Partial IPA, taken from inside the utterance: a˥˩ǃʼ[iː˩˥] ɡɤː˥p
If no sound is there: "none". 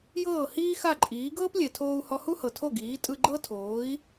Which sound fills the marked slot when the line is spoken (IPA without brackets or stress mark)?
iː˩˥